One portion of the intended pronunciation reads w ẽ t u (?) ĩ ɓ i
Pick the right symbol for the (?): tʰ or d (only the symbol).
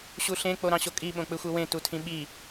tʰ